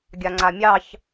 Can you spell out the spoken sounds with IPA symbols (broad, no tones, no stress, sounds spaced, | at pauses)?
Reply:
ɡʲ a ŋ͡ǀ a mʲ ɑ ç